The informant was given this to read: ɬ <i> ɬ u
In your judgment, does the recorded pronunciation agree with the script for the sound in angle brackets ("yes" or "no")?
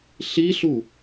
yes